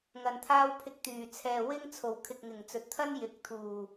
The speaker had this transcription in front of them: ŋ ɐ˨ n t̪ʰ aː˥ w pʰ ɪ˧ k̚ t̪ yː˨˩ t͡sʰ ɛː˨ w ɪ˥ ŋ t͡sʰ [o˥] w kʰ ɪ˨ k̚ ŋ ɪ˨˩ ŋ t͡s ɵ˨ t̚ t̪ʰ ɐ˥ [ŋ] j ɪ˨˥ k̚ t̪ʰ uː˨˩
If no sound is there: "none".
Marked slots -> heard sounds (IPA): o˨˩, n

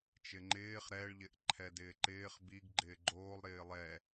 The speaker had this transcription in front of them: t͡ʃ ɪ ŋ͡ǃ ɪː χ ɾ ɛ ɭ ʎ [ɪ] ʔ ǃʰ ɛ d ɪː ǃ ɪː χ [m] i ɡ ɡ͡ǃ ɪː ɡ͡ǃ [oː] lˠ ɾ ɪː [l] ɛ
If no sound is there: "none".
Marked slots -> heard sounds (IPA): ɪ, b, oː, lˠ

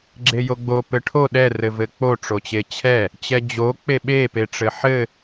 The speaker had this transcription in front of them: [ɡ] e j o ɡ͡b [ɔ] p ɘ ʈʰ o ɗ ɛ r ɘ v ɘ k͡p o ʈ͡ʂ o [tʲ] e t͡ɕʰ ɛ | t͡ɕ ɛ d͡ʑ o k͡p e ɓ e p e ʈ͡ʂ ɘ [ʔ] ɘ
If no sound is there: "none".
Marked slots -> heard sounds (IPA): ɡ͡ǁ, o, t͡ɕ, ħ

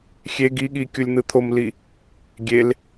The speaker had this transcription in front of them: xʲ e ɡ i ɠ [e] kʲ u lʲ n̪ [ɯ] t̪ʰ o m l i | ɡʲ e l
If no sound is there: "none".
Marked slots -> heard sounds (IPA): i, ɯ

